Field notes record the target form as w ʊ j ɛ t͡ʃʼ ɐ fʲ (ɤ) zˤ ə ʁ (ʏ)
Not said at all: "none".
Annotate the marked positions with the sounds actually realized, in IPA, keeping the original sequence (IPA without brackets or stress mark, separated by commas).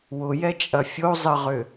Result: o, ʏ